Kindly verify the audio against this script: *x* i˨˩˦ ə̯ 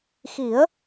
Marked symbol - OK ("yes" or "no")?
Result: yes